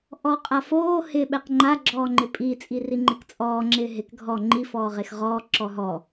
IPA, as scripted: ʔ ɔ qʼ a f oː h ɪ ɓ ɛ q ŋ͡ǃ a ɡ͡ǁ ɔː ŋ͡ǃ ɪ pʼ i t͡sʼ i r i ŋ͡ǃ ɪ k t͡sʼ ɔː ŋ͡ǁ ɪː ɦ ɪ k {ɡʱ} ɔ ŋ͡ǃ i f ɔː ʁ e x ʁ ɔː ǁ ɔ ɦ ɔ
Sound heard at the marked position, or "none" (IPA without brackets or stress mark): ɡʱ